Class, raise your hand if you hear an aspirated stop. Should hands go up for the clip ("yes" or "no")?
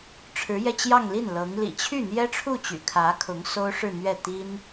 yes